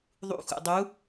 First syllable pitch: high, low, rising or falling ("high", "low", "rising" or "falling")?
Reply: low